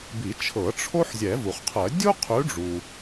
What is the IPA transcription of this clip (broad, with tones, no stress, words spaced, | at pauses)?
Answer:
bi˨˩˦t͡ʃʰɤ˨˩˦ ʈ͡ʂʰo˥ħ zʲɛ˨˩˦vu˩χqʰɜ˨˩˦ dʲu˥qʰʉ˨˦ɖ͡ʐu˩